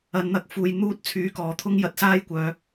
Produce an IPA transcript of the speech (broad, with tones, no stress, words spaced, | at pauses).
ɐ˨˧nn̪ɐ˧k̚ fuː˧jn̪uː˥t̚t͡sʰyː˧kɔː˨˧ t̪ʰʊ˥ŋ jɐ˧t̚saː˥jkʷœː˨˧